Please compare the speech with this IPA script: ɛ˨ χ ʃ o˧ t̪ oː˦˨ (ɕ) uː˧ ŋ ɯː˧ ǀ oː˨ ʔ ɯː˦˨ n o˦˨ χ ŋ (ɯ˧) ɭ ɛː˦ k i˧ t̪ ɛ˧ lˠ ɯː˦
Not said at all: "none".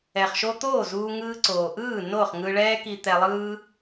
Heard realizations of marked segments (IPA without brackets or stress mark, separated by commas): z, ɯ˧